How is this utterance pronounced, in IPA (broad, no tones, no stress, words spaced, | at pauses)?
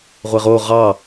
ʁʷeʁo ʁɑ